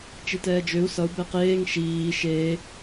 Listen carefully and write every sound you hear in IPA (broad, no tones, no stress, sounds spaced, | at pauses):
t͡ʃ i t ɛː d͡ʒ ø u̯ s ʌ u̯ b ɛ q eː ŋ ʃ iː ʃ eː